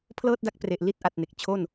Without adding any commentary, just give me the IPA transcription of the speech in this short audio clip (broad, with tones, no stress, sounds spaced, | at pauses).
pʰ l ɤː˥˩ t̚ d a˦˥ k̚ p r e˨˩ ʔ l i˥˩ t̚ ʔ a˨˩ t̚ n e˨˩ k̚ t͡ɕʰ o˥˩ n